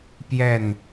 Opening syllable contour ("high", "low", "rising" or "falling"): falling